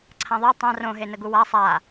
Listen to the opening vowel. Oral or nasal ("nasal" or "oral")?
nasal